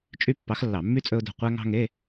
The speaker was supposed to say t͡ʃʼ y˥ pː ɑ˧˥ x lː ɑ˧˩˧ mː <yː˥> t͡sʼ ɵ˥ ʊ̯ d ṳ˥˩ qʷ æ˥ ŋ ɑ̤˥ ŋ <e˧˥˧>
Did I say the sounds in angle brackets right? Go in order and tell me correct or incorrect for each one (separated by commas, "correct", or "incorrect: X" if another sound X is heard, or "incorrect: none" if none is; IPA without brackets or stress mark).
incorrect: y˥, correct